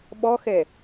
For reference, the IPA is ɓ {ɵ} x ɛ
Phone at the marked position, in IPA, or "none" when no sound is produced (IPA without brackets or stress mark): ɔ